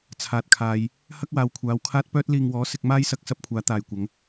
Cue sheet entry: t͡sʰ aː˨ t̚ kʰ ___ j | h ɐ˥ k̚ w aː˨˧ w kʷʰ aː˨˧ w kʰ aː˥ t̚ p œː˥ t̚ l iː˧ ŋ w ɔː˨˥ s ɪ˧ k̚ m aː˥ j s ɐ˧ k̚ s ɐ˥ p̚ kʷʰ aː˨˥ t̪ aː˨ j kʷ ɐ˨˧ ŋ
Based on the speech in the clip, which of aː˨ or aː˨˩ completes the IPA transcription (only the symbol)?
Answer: aː˨